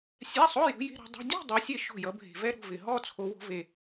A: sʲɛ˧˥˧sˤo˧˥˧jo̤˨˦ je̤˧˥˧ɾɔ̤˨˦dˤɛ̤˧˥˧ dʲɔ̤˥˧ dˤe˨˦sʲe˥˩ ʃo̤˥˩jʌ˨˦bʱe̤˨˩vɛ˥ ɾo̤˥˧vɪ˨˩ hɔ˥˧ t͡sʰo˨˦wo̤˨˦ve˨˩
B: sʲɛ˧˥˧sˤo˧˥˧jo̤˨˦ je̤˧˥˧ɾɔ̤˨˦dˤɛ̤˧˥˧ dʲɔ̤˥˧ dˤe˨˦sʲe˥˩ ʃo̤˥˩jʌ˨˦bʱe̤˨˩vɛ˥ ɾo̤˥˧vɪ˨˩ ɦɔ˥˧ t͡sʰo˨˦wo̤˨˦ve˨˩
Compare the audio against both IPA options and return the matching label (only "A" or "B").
B